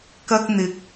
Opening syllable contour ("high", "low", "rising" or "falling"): high